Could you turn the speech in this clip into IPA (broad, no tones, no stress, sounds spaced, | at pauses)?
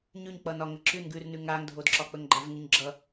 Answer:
ɲ ʉ ɲ k͡p ʌ n ɒ ŋ ə ǁ ʉ n ɡ ʉ r n ʉ ŋ a ŋ dʱ o d ǁ ɒ k͡p ə ŋ ɡ͡ǃ a v ŋ ʉ ɲ ɡ͡ǁ ʌ